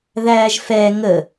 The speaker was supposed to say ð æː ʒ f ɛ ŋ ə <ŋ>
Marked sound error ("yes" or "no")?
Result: yes